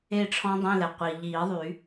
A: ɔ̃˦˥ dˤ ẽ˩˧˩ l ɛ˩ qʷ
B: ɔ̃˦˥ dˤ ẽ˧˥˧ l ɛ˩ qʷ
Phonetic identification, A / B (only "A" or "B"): B